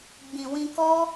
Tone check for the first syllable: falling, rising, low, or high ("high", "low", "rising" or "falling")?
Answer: low